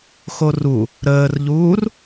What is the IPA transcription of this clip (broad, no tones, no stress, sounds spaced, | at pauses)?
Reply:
x o r u | ɾ əː r ʎ uː r